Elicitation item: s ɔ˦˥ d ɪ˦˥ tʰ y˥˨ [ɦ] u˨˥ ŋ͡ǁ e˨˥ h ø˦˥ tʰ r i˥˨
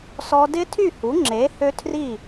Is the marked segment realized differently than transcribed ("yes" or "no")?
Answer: yes